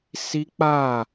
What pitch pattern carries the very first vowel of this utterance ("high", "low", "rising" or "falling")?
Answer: high